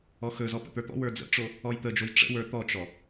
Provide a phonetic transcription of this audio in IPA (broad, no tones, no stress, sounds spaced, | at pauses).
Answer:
ɔ x ɵ z ɔ p ə̰ t̪ ə˞ t̪ ɔ̰ w ə˞ d͡z ə̰ ʈ͡ʂ o | ɔ j t̪ ə d͡ʒ o j ʈ͡ʂ ə̰ w ə˞ t̪ ɔ t͡ʃ ɔ